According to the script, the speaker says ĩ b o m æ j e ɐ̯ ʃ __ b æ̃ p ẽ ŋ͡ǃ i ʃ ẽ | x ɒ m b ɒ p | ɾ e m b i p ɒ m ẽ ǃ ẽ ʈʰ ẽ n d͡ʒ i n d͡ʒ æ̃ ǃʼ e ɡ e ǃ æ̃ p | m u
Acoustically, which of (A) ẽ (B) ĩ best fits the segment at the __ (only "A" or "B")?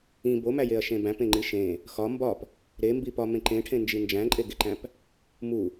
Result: A